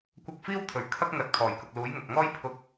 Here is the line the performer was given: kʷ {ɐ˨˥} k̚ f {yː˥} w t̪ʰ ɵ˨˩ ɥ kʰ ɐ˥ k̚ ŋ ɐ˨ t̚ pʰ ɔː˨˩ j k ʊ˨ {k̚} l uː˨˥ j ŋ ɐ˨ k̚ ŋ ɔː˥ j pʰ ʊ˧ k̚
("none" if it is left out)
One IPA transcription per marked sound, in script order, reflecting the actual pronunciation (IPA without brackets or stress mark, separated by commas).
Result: ɐ˧, iː˥, k̚